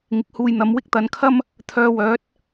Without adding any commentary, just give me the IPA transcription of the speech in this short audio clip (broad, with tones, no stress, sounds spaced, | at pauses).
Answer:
ŋ ɪ˨˥ k̚ h uː˨ j n̪ ɐ˨˧ m w ɪ˥ k̚ t̪ ɐ˨˧ n kʰ ɐ˥ m | t̪ʰ œː˧ w œː˨˥ t̚